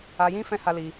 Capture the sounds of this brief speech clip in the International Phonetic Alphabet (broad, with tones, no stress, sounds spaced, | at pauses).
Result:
a˧ j ĩ˦ f ɛ̃˦ h a˦ l i˧